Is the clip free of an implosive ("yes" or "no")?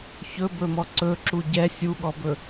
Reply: no